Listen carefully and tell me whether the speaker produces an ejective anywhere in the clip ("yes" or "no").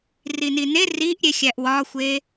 no